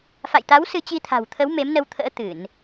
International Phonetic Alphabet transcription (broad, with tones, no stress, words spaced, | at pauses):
fa̰˧˨jt̪a˨˦w sɨ˧t͡ɕi˧t̪ʰa̤˨˩wt̪ʰə˨˦w me˨˦mnə˧w t̪ʰə̰ː˧˥ t̪ɨ˧˩˨n